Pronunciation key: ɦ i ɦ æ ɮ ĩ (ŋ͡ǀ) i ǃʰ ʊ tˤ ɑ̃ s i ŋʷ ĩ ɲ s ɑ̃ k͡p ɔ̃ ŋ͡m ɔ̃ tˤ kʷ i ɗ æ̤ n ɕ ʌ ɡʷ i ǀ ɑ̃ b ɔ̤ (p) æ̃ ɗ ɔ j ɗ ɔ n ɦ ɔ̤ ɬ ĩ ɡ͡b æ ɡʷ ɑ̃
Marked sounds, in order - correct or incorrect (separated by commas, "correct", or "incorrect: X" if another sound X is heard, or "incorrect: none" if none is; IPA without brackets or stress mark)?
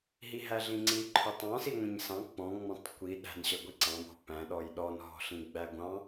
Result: correct, correct